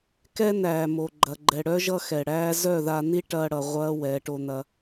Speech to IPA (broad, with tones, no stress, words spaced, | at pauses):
kɛ˦næː˨mo˨ ɡ͡ǃɐ˨ɡ͡ǃɛ˨ɽœ˦ ʒʌ˦xɛ˨ɽæː˦ zœ˦˨ða˧ni˦ ʈɐː˦ɽʌ˧ ʁʷɐː˦ wɛ˨˦ʈo˧ n̪ɐ˧